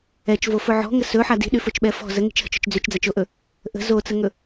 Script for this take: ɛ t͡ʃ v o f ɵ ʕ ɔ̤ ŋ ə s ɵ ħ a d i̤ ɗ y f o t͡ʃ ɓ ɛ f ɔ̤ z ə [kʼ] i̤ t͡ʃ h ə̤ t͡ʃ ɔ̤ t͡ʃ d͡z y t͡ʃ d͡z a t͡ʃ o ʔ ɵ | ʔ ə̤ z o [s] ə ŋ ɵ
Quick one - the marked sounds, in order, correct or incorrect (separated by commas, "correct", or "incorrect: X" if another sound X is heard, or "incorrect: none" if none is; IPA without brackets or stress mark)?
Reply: incorrect: ŋ, incorrect: t͡s